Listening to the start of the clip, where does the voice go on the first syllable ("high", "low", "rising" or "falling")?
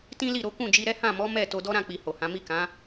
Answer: high